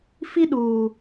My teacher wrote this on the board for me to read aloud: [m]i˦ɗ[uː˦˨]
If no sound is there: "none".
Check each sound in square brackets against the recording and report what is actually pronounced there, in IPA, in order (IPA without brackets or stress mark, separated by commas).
f, uː˨